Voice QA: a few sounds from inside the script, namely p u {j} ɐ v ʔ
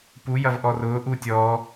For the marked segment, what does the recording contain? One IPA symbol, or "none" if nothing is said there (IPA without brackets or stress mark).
j